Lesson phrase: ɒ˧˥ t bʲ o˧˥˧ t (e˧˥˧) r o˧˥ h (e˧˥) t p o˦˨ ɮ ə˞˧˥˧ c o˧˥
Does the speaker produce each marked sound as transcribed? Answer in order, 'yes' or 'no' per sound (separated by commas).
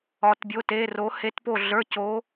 yes, yes